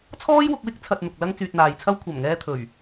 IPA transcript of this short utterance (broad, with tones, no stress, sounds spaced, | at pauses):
t͡sʰ ɔː˥ j w ʊ˧ k̚ w ɪ˥ k̚ t͡sʰ ɐ˧ t̚ n̪ ʊ˨ k̚ l ɐ˥ ŋ t͡s yː˧ t̚ n̪ aː˨ j t͡sʰ ɐ˥ w kʷʰ ɐ˨˩ m ŋ ɛː˧ t̪ʰ ɵ˨˩ ɥ